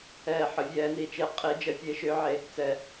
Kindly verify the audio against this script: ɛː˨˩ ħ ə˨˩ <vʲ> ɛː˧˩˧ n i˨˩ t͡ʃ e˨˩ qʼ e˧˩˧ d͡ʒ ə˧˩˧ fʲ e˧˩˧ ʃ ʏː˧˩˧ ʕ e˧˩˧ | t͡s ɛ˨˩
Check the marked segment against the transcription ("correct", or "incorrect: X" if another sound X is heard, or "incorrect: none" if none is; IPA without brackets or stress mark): correct